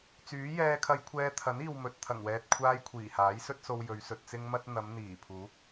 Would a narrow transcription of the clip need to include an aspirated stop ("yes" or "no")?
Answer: yes